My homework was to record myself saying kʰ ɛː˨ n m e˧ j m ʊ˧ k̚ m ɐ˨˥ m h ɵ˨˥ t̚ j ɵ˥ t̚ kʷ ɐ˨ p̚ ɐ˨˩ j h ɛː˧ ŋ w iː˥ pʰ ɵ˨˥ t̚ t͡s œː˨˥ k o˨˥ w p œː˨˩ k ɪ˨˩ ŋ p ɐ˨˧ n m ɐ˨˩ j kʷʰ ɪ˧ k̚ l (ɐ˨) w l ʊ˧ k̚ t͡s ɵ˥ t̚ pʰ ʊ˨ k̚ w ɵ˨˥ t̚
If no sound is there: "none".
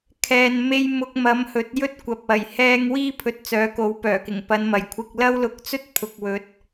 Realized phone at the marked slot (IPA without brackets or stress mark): ɐ˥